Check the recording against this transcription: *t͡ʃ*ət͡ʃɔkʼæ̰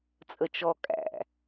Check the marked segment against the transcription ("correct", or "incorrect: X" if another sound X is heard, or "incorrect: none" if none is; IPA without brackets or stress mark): incorrect: t͡sʼ